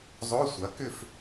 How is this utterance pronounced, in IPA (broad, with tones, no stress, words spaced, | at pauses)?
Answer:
zˤo˧˥˧sʷɐ˩˥kʏ˥˨f